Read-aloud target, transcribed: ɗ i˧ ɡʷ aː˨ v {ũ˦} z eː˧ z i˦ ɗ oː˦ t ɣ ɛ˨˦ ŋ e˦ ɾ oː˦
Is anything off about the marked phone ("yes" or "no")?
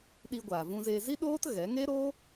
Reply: yes